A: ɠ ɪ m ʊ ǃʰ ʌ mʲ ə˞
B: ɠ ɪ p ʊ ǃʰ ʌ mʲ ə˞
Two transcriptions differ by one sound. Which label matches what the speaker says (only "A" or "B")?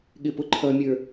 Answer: B